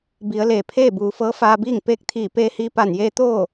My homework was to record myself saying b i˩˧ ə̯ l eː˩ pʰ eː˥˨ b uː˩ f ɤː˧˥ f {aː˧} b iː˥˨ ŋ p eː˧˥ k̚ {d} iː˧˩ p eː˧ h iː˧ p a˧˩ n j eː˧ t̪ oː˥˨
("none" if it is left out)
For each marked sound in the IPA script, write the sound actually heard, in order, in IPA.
aː˧, t̪ʰ

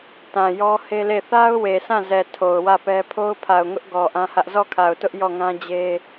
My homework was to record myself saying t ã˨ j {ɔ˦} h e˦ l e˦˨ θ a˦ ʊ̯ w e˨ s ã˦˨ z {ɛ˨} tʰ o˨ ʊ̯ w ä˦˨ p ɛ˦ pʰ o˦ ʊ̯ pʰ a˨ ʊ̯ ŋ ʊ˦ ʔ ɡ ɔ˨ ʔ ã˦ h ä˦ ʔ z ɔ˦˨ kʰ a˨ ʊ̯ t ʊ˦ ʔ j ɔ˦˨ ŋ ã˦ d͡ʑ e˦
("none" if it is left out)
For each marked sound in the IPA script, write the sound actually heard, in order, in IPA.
ɔ˦, ɛ˨

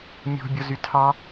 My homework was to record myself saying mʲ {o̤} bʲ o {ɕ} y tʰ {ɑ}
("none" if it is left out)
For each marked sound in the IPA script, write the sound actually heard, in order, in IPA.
o̤, z, ɑ

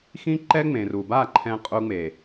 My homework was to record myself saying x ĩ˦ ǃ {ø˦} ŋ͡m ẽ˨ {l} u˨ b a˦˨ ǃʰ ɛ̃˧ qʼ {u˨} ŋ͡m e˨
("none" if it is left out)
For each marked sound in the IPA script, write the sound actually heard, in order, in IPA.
ɛ˦, r, u˧

